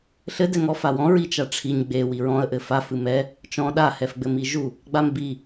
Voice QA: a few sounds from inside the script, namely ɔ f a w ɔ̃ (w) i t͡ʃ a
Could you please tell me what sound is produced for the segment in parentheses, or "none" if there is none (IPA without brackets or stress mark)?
ɹ